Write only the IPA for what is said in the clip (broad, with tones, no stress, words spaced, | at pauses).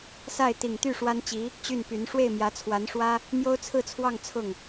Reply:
sa˥˩ɪ̯ t̪i˨˩ŋt̪y˥˩ ʂwa˥nt͡ɕi˧˥ | t͡ɕy˥˩npy˧˥n ʂwe˥˩ɪ̯mjä˧˥t͡sʰwa˧˥nʂwä˥ | mjo˥ʊ̯t͡sʰɹ̩˥˧t͡sʰwɑ˥˧ŋ t͡sʰʊ˥˩ŋ